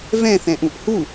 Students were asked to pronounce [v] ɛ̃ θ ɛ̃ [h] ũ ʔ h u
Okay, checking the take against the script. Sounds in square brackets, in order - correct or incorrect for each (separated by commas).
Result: correct, incorrect